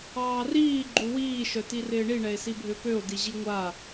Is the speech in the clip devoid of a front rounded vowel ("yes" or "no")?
no